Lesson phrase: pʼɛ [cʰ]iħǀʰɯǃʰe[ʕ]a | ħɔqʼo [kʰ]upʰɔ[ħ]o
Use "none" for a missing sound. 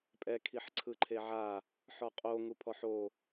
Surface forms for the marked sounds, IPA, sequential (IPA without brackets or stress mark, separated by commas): kʰ, ʕ, ŋ, ħ